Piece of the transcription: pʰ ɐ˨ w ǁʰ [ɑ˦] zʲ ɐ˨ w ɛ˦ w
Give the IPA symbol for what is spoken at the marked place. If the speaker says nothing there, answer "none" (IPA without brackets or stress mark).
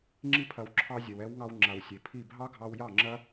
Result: ɑ˧